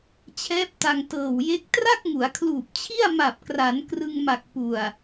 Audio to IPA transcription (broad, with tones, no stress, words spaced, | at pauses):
t͡ɕʰɛː˦˥p̚ta˧ŋ tɤː˨˩wje˦˥k̚ tra˥˩k̚ŋu˩˦a̯kʰluː˨˩p̚t͡ɕʰi˥˩a̯ ma˨˩p̚kra˩˦n krɯ˧ŋma˨˩k̚ pu˨˩a̯